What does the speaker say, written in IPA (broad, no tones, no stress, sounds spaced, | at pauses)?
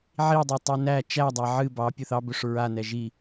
ʕ i dˤ o tˤ i n æ t͡ʃ æ dˤ æ ʕ ɨ b ɑ pʲ ɵ θ ɑ b ɵ ʂ ɹ a n ɛ ʒ i